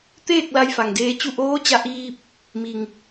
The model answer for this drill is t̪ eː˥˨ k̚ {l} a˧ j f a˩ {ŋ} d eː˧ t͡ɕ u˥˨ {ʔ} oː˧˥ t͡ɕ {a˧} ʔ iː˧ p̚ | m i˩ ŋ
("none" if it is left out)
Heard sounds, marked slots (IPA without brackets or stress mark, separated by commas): l, ŋ, ʔ, a˧